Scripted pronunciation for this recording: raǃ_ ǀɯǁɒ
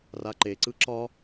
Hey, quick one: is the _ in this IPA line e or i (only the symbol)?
e